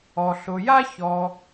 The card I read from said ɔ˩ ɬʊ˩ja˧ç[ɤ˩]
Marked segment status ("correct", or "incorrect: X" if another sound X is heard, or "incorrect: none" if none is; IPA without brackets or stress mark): incorrect: ɔ˩